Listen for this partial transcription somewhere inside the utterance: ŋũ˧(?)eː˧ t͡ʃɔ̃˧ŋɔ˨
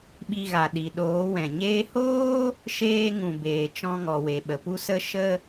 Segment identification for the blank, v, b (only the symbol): b